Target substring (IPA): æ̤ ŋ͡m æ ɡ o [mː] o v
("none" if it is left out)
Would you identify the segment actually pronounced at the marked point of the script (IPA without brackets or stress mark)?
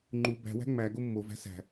mː